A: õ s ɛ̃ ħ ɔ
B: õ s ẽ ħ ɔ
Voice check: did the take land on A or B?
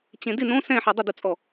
A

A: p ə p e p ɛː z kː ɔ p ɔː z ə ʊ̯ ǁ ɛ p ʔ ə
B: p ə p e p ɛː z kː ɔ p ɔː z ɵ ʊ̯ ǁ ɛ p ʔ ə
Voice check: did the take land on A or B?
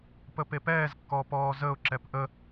A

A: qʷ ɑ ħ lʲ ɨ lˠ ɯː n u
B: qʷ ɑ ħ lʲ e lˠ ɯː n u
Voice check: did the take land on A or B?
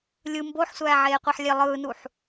B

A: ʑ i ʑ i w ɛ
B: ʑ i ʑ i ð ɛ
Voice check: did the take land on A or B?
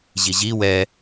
A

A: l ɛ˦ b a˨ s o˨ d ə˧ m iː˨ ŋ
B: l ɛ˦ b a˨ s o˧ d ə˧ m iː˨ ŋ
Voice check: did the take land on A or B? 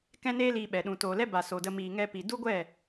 A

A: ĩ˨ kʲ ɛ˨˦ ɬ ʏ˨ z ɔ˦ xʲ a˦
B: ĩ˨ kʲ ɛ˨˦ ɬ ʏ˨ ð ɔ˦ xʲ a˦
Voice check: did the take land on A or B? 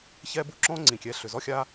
A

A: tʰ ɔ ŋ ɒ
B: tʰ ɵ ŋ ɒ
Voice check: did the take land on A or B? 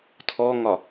A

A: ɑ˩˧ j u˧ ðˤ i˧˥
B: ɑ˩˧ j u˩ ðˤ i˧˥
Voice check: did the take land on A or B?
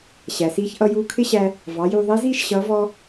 A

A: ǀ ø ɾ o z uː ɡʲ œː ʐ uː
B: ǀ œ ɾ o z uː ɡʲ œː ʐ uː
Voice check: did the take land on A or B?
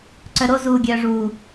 B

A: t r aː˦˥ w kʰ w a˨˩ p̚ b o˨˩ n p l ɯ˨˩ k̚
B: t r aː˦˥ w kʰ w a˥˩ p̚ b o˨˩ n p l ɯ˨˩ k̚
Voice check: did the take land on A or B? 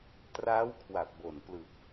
A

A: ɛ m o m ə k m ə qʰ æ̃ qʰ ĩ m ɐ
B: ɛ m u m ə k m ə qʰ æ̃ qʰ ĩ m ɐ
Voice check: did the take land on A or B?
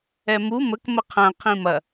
B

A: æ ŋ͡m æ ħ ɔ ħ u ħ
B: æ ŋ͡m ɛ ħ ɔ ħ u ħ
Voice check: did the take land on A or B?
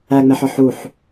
B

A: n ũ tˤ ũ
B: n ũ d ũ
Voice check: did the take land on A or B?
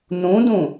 B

